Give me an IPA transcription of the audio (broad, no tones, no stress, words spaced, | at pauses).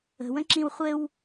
ə̤wə̃ǁĩw χʷɘw